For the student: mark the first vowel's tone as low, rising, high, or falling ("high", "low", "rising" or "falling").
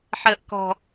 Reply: low